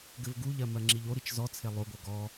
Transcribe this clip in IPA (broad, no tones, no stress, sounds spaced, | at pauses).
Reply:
ɡ ɘ v ɡ u ʎ ɜ m ɜ ŋ͡ǁ i ʎ o ɾ i t͡ʃ z ɔ t͡sʰ e lˠ o ɡʷ ɜ ɡ ɔ